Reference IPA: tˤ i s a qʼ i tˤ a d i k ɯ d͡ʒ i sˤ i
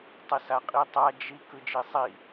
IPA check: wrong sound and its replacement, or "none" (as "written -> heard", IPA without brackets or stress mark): d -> d͡ʒ